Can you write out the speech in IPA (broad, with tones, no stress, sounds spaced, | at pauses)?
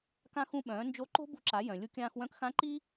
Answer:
k ã˥ x ũ˧ ɓ œ̃ː˩˧ n d͡ʒ o˧˥ ǃ o̤˥ b ṳ˧ ǁ a˩˧ j œ̃˩ lʲ u˧ kʲ ãː˧ x w œ̃˧˥ k x ã˧˥ ǃ i˥